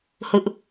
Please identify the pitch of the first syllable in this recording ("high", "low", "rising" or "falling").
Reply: high